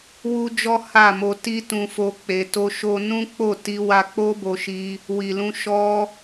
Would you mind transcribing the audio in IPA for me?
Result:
w u˦ d͡ʒ ɔ˦ h a˦˨ m o˧ t i˦ t ũ˧ f o˧ k͡p e˧ t o˦ ʃ o˦ n ũ˦ k͡p o˦˨ t i˧ w a˧ k͡p o˦ b o˧ ʃ i˧ | w i˨ l ũ˧ ʃ ɔ˧

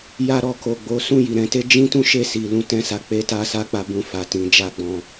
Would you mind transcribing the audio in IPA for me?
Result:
j a˧ ɾ ɔ˨ k o˨ ɡ͡b o˨˦ s ũ˦˨ j i˨ ɾ ɛ̃˨˦ t e˦ d͡ʒ ĩ˦ t ũ˦ ʃ e˦˨ s i˨ l ũ˧ t ɛ̃˦ s a˧ k͡p e˦ t a˦ s a˦ k͡p a˦ b ũ˦ f a˧ t ĩ˧ d͡ʒ a˦ ɡ͡b ɔ̃˧

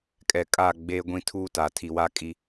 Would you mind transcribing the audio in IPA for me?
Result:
kʼ ɛ˨ kʼ a˦˨ ɡ͡b eː˦ ɡʷ ĩ˦ tʰ uː˦ t a˨ tʰ i˨ w a˦ kʼ i˦

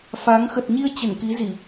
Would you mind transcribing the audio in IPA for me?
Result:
f a˨˦ ŋ x ə˨˩ t̚ ɲ i˧ ə̯ t͡ɕ ə˧˩ n k i˨˦ z i˧˩˨

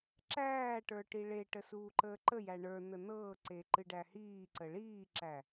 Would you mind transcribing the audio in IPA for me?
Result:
ǁ æː ʈ ə˞ ʈ i ɭ e ʈ ə s uː ǃ əː ǃ ə j æ ɳ ə˞ n̪ ə n̪ ɤː ǀ e ǃ ɨ ɖ æ h iː ǀ ə ɭ iː ǁ æ

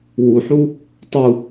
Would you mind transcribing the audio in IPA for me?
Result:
w u ħ u | tˤ u

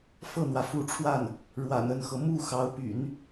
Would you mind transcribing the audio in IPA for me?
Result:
f ɤ˥˩ n̪ w ä˩ f u˧˥ ʈ͡ʂʰ w a˥˩ n | ɻ w a̰˨˩ n ə˥˩ n x ɤ˩ m u˥˩ x ɑ˧˥ ʊ̯ p y̰˨˩˦ n

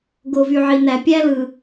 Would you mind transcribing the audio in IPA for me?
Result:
ɡ o˨ v y˨ ʕ i˨ n æ˨ pʲ æ˦ l ɯ˨

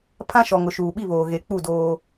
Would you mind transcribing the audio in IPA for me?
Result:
pʰ ã˦ ʃ ɔ˨ ŋ ʊ˨ ʃ uː˨ ɓ i˦˨ β oː˨ ɣ e˨ k͡p u˦˨ d oː˦

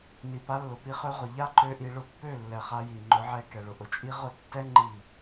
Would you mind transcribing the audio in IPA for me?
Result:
n i˨ p a˧ lː ʊ˨ p i˧ χ ø˧ ʁ ʊ˨ ʎ a˦ ǃ ø˧ ʔ i˧ ɭ ʊ˧ pː ø˦˨ lː ɛ˨ χ a˧ j i˨ ŋ͡ǃ ʊ˨˦ ʕ ɛ˧ k ɛ˨ ɭ ʊ˨ ʔ ʊ˨ t͡ʃʼ i˦ ʁ ʊ˦˨ tː ɛ˦ ŋ͡ǃ i˦˨

